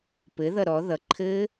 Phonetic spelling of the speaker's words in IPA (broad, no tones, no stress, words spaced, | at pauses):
pɘðʌ ɾɔ ðʌǃʰɘː